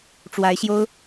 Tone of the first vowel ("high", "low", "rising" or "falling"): rising